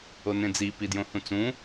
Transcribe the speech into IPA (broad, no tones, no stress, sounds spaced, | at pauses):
o n ẽ d͡z i p i d j õ h ũ t͡s ũ